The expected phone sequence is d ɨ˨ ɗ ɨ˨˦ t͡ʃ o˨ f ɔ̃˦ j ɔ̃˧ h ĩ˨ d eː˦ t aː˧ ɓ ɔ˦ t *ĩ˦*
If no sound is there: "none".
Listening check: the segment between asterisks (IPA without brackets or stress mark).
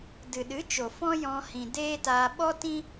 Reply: ĩ˦